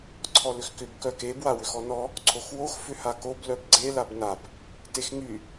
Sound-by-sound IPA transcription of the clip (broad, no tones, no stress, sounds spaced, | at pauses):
ǀʰ ɔ l ʏ x k ʏ b k œ k e b w a w ʏ x ɔ n ɔ | ǀʰ o x w o x f ʏ h a k o b l œ b ɡ͡ǀ e l a b n a b | t e x ŋ y